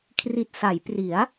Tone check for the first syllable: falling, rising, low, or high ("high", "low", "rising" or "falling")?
low